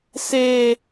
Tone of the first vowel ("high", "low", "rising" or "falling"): high